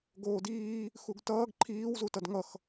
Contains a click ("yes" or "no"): yes